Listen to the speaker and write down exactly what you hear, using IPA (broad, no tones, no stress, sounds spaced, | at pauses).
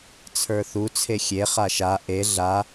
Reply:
t͡sʰ ə˞ θ u t͡sʰ e xʲ e χ a ʃ a ʔ e ɮ a